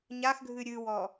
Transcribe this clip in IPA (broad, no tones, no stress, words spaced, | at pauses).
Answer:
ɲaxɡʱɨ ɾʲɨwɔ